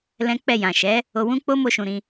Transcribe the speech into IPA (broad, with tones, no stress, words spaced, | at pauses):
lɛ̃˦ k͡pɛ˦˨ jã˨ ʃɛ˨˦ | o˧wũ˦ k͡po˦mo˧ʃũ˨ ɾĩ˧